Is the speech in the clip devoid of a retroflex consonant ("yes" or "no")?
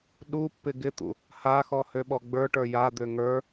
no